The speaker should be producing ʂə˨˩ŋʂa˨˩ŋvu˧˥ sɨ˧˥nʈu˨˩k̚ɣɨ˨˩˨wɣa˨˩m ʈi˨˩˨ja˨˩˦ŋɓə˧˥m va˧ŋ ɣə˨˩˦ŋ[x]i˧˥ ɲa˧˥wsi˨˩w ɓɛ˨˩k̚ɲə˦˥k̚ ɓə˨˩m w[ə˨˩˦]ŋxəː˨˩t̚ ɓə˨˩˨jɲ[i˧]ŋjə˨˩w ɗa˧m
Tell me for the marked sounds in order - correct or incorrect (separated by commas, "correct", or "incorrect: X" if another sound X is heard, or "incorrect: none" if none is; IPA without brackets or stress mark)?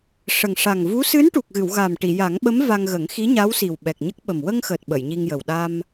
correct, incorrect: ə˧, correct